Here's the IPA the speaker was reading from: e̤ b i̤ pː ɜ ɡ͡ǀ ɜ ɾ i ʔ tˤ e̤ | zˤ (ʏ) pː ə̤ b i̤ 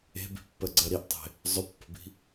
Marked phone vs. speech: correct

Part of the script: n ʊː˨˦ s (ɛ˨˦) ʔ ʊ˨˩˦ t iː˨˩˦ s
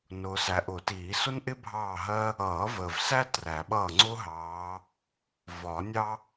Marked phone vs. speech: incorrect: æ˨˦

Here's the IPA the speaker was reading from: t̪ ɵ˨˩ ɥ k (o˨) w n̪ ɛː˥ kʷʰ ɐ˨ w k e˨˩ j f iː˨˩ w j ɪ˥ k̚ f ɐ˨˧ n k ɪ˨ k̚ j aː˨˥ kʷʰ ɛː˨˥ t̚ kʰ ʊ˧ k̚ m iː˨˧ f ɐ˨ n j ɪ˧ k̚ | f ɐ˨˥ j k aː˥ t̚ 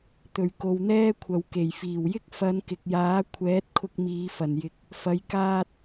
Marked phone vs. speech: correct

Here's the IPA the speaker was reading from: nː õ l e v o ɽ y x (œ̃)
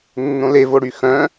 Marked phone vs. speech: correct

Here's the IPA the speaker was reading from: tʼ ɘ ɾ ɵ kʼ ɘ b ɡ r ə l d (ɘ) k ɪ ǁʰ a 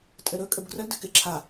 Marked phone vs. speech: correct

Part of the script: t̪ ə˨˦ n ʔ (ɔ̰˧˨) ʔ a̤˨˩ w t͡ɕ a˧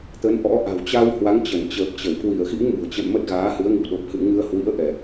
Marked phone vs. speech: incorrect: ɔ̰˧˥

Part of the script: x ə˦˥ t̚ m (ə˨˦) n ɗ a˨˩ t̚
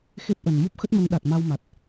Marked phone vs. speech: correct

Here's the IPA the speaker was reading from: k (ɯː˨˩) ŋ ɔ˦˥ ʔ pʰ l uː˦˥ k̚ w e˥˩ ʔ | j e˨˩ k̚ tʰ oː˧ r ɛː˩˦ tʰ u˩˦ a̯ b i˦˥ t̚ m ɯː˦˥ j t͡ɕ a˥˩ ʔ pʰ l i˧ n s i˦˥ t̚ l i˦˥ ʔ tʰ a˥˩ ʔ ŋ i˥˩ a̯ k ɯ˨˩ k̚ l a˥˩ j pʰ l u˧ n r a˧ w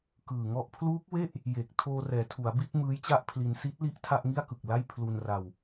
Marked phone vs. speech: correct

